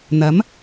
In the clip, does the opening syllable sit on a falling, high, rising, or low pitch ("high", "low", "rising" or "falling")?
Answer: rising